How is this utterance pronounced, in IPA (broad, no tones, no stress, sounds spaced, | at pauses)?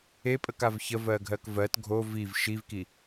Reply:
e pʼ ə k a v ç ə v ɜ ɡʱ ɜ k v ɜ t ɡʱ o v i v ʃ i v k i